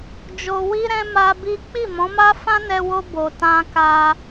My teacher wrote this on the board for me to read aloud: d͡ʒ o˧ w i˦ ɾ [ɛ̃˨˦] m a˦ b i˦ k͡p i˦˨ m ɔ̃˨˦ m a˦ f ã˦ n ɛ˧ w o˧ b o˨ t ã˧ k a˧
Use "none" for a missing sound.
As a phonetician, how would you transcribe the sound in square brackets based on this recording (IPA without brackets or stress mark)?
ɛ̃˦